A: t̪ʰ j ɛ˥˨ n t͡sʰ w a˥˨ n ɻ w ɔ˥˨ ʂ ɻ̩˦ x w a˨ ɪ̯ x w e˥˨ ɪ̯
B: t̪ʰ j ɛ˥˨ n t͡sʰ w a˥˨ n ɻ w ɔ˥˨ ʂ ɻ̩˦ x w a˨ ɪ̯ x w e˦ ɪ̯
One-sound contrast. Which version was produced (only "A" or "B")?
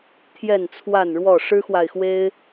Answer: B